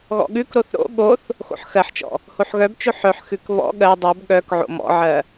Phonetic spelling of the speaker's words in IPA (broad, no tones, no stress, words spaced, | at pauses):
ɣɔ̰ɠʉkɾoθ ɾo̰ ɠoθ | xo̰ħxɜħt͡ʃɔ̰ | hoħɣœbt͡ʃo ħœħxʉk βɔ̰ ɠɜ dˤɜb ɠœk ʕo̰mɔ̰ʕɜ